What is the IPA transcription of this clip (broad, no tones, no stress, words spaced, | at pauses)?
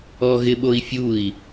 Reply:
ɔɣɪɓoi̯fʲui̯